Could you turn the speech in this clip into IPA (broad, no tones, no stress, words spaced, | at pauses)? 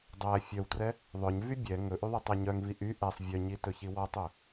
dˤæ fʲœwtrɛ | ðˤœɲvy bʲɛ ŋɵʔyðˤitˤæ ɲœŋvi ʔy ʔɛsˤ vʲœɲitɵçi wɔtˤɵ